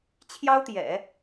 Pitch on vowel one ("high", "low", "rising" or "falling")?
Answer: high